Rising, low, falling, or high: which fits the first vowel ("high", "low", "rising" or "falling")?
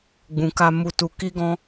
low